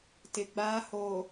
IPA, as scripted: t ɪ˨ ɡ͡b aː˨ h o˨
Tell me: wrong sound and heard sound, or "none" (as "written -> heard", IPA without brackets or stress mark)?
none